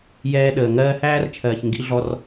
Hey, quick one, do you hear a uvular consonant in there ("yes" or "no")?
no